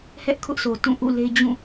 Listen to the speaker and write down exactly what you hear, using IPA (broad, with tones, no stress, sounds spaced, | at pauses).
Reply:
h ɛ˦ ʔ kʰ ʊ˦ ʔ sʰ o˨ t ũ˦˨ ʔ ṵ˦˨ l e˦ d͡ʑ ũ˦˨